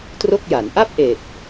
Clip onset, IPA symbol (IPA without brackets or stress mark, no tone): t